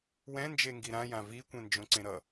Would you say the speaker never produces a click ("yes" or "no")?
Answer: no